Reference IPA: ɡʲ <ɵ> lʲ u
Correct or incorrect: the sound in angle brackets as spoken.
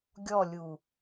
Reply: incorrect: ɔ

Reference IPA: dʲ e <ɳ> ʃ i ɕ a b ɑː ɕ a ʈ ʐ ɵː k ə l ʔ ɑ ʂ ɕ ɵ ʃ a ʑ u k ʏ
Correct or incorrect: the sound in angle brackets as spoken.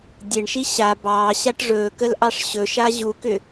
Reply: correct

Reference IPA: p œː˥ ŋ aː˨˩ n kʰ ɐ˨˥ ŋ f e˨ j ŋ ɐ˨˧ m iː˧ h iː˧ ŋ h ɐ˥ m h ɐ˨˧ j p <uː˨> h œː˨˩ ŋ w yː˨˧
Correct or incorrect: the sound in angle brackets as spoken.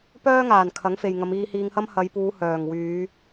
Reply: incorrect: uː˨˧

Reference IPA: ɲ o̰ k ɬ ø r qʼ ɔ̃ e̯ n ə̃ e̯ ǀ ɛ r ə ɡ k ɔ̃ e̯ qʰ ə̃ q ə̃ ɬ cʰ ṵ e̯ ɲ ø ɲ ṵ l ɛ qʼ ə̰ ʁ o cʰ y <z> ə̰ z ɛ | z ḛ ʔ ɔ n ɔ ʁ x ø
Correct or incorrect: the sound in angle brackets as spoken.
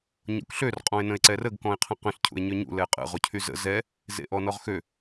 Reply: correct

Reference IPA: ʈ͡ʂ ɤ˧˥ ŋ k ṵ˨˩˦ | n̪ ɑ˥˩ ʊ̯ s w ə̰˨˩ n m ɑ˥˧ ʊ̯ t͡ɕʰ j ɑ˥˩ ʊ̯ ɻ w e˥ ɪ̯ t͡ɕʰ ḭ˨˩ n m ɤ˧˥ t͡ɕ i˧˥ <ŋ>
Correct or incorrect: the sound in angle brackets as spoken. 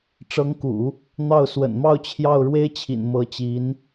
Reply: incorrect: n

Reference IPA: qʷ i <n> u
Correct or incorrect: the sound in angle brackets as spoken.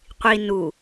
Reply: correct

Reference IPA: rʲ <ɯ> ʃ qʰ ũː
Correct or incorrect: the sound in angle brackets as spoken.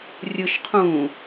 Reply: correct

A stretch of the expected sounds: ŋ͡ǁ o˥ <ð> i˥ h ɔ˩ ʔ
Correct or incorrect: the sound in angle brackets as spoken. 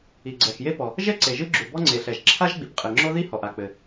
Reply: correct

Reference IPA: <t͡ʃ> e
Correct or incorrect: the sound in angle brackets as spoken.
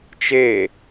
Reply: correct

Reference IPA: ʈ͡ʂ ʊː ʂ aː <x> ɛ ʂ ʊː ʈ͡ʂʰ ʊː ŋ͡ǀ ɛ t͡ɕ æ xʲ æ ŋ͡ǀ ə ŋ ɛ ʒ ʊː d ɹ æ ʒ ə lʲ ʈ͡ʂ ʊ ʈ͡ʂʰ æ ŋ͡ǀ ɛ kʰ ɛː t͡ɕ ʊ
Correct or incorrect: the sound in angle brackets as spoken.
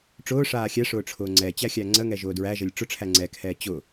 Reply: incorrect: xʲ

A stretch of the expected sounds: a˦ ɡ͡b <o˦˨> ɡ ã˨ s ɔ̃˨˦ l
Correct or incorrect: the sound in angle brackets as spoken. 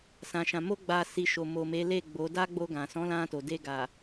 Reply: incorrect: o˧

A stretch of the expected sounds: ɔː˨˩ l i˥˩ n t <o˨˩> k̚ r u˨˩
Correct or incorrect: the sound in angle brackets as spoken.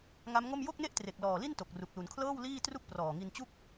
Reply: correct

